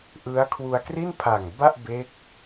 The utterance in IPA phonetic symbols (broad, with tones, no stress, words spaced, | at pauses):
ʔɯ˦˥a̯kʰwu˧a̯ kri˥˩npʰa˨˩ŋ ba˥˩ʔbe˦˥k̚